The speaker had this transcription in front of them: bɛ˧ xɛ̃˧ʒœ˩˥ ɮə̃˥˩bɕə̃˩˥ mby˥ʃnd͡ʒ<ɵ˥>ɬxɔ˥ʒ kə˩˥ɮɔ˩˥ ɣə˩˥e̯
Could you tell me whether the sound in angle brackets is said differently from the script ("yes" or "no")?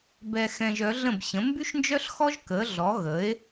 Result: yes